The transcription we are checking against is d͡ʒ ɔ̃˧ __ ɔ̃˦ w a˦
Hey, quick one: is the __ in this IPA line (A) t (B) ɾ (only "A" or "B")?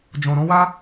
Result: B